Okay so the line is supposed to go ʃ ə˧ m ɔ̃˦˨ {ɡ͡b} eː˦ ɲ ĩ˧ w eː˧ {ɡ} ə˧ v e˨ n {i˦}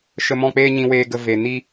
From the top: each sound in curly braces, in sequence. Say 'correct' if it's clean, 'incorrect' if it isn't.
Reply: incorrect: k͡p, correct, correct

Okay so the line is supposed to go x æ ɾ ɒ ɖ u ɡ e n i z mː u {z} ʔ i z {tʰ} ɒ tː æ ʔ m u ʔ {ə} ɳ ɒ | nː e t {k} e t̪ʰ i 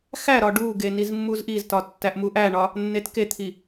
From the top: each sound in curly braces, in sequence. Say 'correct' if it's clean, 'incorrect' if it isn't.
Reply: correct, incorrect: t, incorrect: æ, correct

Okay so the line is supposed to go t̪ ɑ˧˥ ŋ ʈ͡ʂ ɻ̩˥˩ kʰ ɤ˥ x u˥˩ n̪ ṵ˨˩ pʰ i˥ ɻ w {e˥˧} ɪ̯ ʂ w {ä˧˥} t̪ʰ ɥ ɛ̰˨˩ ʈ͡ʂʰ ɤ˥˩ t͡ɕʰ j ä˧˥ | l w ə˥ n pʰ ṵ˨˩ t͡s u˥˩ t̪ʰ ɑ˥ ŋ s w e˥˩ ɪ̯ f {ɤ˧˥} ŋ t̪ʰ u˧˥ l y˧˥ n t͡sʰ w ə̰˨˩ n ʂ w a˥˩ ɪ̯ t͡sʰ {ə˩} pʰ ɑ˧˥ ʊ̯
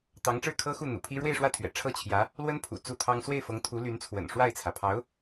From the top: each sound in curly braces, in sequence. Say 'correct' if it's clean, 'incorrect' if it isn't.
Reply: correct, incorrect: ä˥˩, correct, incorrect: ä˩

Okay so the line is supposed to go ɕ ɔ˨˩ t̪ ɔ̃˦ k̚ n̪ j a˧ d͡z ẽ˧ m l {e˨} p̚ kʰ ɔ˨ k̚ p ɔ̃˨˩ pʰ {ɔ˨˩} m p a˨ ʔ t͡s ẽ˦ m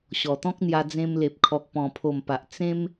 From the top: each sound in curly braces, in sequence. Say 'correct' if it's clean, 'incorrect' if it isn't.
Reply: correct, incorrect: o˨˩

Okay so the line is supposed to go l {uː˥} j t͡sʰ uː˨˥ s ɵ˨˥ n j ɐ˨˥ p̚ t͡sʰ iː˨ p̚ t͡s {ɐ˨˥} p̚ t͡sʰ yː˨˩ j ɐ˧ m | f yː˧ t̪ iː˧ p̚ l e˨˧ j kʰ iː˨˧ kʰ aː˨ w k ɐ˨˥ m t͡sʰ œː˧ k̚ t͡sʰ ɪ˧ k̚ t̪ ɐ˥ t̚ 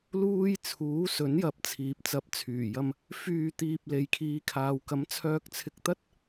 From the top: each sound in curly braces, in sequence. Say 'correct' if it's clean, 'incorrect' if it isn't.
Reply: correct, correct

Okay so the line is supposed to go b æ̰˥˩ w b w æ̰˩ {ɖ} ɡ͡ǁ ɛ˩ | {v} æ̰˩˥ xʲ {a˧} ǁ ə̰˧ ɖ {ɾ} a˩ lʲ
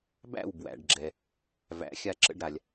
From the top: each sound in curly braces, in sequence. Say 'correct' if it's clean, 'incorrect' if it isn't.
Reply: correct, correct, correct, correct

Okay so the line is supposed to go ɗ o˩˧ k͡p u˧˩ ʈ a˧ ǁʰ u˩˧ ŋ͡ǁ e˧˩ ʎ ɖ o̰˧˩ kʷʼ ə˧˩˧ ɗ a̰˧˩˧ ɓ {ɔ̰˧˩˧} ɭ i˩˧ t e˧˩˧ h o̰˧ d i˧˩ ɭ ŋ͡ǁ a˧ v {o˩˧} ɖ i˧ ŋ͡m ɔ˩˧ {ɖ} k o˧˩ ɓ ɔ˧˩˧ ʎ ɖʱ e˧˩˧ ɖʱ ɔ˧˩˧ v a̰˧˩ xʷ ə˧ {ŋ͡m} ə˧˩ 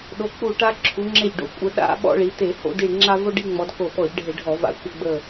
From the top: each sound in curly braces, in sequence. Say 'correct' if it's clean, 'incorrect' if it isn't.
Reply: incorrect: ɔ̰˧, incorrect: o˧, incorrect: d, incorrect: ɡ͡b

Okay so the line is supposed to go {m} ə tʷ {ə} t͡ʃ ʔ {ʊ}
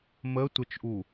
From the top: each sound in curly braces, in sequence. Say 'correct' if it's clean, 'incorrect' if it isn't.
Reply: correct, correct, incorrect: u

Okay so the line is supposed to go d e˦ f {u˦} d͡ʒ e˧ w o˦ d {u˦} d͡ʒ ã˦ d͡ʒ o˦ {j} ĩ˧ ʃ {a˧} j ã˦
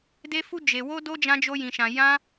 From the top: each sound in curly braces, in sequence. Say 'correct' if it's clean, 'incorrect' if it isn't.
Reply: correct, incorrect: o˦, correct, incorrect: ã˧

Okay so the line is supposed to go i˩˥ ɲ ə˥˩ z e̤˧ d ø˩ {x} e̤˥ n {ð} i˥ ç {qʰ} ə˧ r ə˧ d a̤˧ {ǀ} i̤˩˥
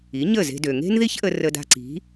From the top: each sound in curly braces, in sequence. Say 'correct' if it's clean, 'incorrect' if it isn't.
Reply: incorrect: ŋ, correct, incorrect: ʔ, correct

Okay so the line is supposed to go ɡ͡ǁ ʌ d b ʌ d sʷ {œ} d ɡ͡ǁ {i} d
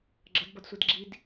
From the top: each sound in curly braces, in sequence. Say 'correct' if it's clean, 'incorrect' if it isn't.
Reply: incorrect: ɛ, correct

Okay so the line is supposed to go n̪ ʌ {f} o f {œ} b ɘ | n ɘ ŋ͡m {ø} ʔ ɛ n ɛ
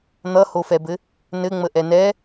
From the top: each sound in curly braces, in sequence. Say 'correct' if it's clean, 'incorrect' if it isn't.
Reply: incorrect: h, incorrect: ɛ, incorrect: ə

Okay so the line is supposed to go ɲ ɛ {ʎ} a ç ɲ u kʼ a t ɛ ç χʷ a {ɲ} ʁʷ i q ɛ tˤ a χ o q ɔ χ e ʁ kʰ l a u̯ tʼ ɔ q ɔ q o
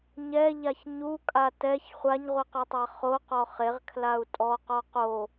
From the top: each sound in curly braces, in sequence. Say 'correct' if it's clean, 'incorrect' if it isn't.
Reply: correct, correct

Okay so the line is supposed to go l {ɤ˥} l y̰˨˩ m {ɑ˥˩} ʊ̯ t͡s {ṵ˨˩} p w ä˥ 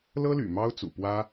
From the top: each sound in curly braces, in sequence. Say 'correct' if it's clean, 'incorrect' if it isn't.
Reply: correct, incorrect: ɑ˥, correct

